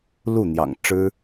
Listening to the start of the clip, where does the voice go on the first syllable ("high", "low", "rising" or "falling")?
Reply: falling